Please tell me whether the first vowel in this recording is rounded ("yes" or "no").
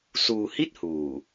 yes